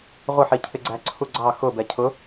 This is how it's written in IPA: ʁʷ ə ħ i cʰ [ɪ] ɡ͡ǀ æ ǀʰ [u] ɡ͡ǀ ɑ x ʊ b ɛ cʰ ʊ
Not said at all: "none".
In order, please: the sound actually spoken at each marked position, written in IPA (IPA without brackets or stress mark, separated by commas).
ɪ, u